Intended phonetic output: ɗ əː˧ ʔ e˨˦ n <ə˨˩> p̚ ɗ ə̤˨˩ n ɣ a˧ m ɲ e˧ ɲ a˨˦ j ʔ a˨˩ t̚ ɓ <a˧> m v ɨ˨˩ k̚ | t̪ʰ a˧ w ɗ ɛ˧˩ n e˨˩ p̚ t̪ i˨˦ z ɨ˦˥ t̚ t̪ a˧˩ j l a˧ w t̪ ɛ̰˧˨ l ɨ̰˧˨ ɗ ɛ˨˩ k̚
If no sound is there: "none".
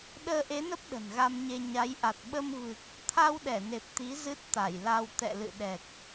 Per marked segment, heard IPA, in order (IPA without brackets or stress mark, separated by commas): ə˦˥, ə˧